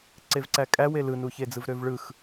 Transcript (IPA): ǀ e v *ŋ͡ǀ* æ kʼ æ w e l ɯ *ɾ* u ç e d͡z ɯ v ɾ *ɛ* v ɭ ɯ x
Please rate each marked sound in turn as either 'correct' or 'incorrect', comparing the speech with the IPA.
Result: incorrect: ǀ, incorrect: n, incorrect: ø

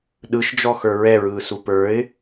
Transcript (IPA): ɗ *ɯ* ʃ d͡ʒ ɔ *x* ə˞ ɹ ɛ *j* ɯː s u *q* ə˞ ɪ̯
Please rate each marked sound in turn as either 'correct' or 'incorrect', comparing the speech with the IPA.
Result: correct, correct, incorrect: ɹ, incorrect: p

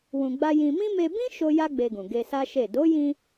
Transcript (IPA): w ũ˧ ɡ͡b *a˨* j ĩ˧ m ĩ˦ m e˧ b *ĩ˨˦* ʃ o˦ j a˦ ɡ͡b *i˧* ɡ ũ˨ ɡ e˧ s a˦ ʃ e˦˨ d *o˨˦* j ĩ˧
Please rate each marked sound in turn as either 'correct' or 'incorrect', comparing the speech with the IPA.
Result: incorrect: a˦, incorrect: ĩ˦, incorrect: e˧, correct

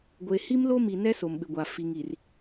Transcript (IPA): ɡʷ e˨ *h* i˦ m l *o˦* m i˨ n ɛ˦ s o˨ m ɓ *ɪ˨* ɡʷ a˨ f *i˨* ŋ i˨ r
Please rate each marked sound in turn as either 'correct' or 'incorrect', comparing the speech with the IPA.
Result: correct, correct, correct, correct

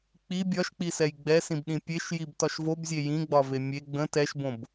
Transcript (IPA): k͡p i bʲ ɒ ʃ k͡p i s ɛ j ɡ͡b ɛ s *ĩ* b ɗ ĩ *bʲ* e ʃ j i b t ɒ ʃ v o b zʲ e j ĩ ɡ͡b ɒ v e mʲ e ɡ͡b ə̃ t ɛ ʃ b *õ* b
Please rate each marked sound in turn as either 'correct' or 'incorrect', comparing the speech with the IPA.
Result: correct, incorrect: pʲ, correct

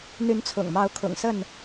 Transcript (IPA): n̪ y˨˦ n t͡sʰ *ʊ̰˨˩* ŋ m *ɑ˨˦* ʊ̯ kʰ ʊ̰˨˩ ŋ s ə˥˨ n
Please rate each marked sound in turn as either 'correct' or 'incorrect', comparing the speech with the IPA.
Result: correct, correct

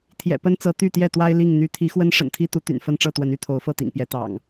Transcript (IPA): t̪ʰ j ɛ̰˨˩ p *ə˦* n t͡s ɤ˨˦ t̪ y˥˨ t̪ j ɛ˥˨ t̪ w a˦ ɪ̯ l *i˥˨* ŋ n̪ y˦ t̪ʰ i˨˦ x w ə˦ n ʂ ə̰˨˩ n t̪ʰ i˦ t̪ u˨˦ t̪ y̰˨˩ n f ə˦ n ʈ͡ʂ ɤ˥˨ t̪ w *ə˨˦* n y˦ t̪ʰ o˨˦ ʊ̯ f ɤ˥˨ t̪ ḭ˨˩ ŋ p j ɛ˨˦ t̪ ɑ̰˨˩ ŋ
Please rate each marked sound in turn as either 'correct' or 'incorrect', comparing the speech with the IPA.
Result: correct, correct, correct

